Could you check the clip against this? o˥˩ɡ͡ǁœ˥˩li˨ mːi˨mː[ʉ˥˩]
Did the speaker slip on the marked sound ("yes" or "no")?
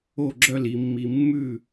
no